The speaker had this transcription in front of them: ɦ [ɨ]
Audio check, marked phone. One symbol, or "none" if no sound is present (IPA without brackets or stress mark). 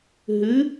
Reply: ɨ